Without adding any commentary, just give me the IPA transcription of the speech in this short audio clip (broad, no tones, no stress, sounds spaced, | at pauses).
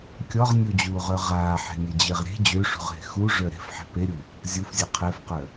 kʲ ɔ ʁ nʲ u d͡ʑ uː ʁ œ ʁ aː ħ e̤ nʲ ɛ d͡ʑ e ʁ ɾʲ e̤ d͡ʑ ø ʂ ṳ ʁ ɦ e̤ x u ʐ œ ɾ e̤ f ħ e̤ p e ɾʲ u | zʲ u f zʲ e qʰ ɛ f q œ